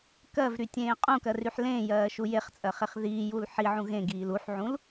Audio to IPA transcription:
k ɜ v ɾ y tʲ ẽː qʼ ũ k ɜ r y ħ l ẽː j ɜː ʃ u j e χ t͡sʼ ɜ χ e χ ð iː j u l ħ i ʕ ũ ɣ ẽ ɡ iː l u ħ ʕ ũ l

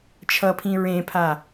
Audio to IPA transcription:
t͡ʃʰ ʌ pʰ ĩ ɹ ẽ pʰ a

